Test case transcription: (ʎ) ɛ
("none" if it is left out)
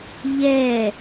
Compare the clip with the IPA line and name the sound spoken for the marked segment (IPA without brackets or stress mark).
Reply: ʎ